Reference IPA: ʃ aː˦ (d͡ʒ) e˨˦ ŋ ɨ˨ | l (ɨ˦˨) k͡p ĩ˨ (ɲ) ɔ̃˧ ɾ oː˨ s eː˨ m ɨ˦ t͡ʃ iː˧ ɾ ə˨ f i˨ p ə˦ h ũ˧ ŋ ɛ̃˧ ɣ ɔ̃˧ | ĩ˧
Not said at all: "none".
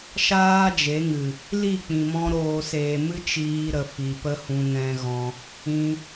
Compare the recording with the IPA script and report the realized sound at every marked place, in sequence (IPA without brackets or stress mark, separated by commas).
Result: d͡ʒ, i˦˨, m